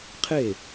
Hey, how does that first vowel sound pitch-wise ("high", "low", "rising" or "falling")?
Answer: falling